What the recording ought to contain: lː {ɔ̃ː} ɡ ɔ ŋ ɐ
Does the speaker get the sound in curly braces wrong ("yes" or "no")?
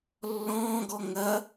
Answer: no